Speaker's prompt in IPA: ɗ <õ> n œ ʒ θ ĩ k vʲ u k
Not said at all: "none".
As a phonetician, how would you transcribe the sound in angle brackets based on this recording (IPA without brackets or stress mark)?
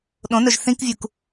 õ